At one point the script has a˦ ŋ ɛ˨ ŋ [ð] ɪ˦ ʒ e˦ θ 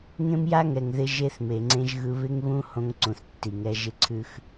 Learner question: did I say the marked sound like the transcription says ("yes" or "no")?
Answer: yes